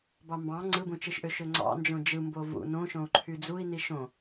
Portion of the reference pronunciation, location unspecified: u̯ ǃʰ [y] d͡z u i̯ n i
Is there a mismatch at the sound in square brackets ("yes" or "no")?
no